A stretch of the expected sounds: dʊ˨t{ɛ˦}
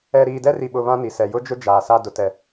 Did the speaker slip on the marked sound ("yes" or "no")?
yes